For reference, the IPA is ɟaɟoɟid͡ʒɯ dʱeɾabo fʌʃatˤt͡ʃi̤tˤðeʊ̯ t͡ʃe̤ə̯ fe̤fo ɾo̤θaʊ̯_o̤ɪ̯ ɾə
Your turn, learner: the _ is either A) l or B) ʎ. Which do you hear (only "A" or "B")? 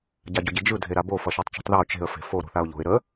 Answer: B